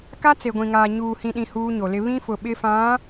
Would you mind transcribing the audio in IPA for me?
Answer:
k a˦ t͡s e˨ ɡʷ ĩ˨ ŋ aː˨ ɲ uː˨ h ĩ˨ ɗ ĩ˨ h uː˦ ɲ o˨ l ɪ˦ β ĩ˦ f ʊ˨ ɓ ɪ˦ f ã˨˦

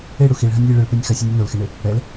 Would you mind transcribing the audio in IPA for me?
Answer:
e ɽ u x i ɭ ɦ ɐ nʲ lʲ e ɭ ɨ ɭ p ɛ nʲ x ɐ sʲ ɛ nʲ ɛ n o l x e ɳ e | ɽ ɛ l

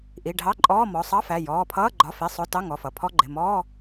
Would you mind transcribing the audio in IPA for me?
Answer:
ʔ i˩˧˩ ɖʱ ɑ˧˥˧ ǃʼ ɔː˧˥˧ m ɔ˩˧˩ sˤ ɑ˧˥˧ f æ˩˧˩ j ɔː˩˧˩ pʰ ʌː˧˥˧ ɡ͡ǃ ɒ˩˧˩ f i˩˧˩ sˤ ʊ˧˥˧ t ɑ˧˥˧ ŋ ɔ˩˧˩ f ʌ˩˧˩ pʰ ɔ˧˥˧ ɡ͡ǃ ɪ˩˧˩ m ɔː˧˥˧

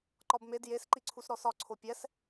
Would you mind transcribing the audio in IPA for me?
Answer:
ǃ ɒ b m e d j e s ǃ i ǀʰ u s ɾ ɔ s ɒ ǀʰ o pʲ ɛ s

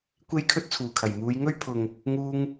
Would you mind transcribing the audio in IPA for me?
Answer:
kʷ e˥ j kʰ ɵ˥ t̚ t͡sʰ uː˨˩ kʰ ɐ˨˩ j m uː˨˧ j ŋ ɵ˥ ɥ pʰ ʊ˨ ŋ | ŋ uː˧ ŋ

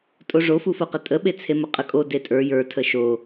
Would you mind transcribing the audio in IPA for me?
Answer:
tʼ o ʐ o f u f o q ə tʼ ə ɓ e t͡sʰ e m ə qʼ ə kʼ o d e tʼ ə˞ j ə˞ tʰ ə ʃ o

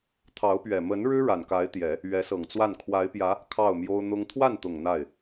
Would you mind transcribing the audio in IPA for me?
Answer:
t̪ʰ ɑ˧˥ ʊ̯ p ɥ ɛ˨˩ m ə˧˥ n ɻ ɻ̩˥ ɻ a˨˩ n k a˧˥ ɪ̯ t̪ j ɛ˨˩˦ | ɥ ɛ˧˥ s ɤ˨˩ ŋ t͡s w a˥˩ n kʰ w a˧˥ ɪ̯ p j ä˧˥ | kʰ ɑ˥˩ ʊ̯ m j o˥ ʊ̯ n̪ ʊ˥ ŋ t̪ʰ w a˥˩ n t̪ ʊ˨˩ ŋ n̪ a˥˩ ɪ̯

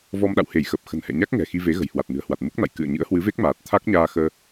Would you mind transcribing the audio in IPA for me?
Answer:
v ɔ˧ m ɗ a̰˧˨ w h e˧˩ j x ə˨˩ p̚ x ə̤˨˩ n h ɛ̰˧˨ ɲ a˦˥ k̚ ŋ ɛ̤˨˩ x i˧ v e˨˦ ɣ ə̤˨˩ j h w a˨˩ t̚ n ɨ̤˨˩ ə̯ h w a˨˩ t̚ m u˦˥ k̚ n a̰˧˨ j k ɨ̰˧˨ ə̯ ɲ ɨ̰˧˥ ə̯ h w ɨ˨˦ v e˦˥ k̚ m aː˨˩ t̚ t̪ʰ a˦˥ k̚ ɲ aː˧ x əː˧

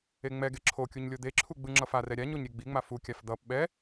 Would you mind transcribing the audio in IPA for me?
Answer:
e ŋ͡m ɛ ɡ e ǁʰ o kʲ u ɲ lʲ o d̪ e ǁʰ u ɡ͡b ɯ ŋ͡ǁ ʌ f a r ɛ ɾʲ a ɲ o ɲ ɾʲ e ɡ͡b i ŋ͡m a f u kʲ a f d̪ ʌ p ɓ ɛ

